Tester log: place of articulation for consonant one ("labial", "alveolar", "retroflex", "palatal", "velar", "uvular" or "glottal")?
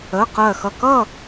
uvular